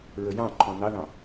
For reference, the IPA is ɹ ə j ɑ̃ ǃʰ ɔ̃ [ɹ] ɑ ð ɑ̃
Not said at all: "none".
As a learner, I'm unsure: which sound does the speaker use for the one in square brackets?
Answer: n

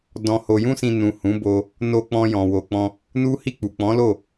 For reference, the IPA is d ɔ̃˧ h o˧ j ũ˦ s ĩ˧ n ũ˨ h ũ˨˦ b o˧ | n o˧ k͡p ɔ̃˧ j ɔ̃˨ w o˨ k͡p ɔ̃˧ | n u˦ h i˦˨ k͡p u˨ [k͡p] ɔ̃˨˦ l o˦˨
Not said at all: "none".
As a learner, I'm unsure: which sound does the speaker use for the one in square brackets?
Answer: k͡p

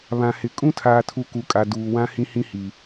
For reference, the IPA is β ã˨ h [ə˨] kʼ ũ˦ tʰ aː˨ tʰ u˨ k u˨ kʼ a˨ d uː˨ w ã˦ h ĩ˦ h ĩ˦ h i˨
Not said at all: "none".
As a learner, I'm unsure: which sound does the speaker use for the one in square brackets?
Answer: ɪ˨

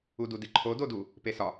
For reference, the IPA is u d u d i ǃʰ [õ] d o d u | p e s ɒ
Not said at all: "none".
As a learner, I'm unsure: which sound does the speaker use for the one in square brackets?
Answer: o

